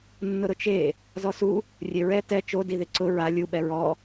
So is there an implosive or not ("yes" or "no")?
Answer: yes